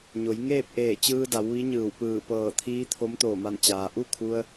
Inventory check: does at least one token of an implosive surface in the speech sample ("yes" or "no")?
no